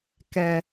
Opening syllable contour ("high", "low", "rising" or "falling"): high